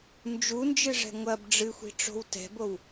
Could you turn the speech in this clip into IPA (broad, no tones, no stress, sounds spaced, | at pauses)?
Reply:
n d͡ʒ u n d͡ʒ ɨ ʐ ɛ̤ ŋʷ ɐ b ɖ͡ʐ ɨ xʷ i̤ ʈ͡ʂ o̤ w t ɛ̤ b o w